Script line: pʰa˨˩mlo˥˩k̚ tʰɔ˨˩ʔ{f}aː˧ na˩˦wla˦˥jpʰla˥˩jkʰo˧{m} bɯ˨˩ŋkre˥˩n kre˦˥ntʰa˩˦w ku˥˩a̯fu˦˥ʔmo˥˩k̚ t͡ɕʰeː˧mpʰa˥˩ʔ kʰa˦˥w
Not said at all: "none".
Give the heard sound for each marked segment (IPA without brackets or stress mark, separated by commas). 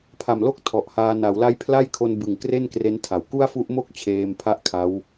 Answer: h, n